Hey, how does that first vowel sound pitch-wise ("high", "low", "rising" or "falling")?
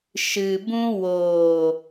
low